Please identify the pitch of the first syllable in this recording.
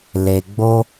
low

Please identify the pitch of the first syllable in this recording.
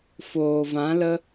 low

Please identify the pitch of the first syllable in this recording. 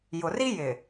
low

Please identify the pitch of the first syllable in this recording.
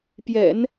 low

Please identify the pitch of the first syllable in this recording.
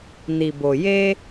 low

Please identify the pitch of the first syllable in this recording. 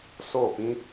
falling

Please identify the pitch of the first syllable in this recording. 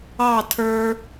falling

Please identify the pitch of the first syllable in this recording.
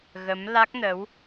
rising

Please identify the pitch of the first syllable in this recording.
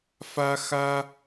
high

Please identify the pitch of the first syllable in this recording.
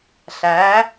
rising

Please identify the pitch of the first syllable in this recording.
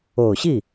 low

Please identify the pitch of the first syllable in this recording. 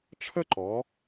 high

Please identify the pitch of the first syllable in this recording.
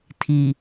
low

